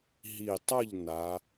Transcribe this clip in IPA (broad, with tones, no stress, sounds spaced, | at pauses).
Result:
ɦ i˨˩ tˤ ʌ˦˨ ʎ n a˨˦